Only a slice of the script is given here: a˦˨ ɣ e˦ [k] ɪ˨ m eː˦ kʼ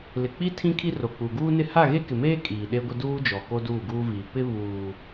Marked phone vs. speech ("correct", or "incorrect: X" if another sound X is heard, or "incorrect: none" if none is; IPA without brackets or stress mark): correct